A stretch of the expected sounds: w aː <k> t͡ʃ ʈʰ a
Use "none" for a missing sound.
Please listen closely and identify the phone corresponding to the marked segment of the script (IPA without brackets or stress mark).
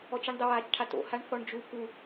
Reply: none